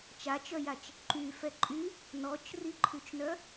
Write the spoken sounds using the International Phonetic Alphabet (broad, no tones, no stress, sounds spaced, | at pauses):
t͡ʃ a t͡ʃ œ j a t͡ʃ | ǃ y f ɛ ǃʼ y | n ɔ t͡ʃ r i ǃʰ y t͡ʃ n œ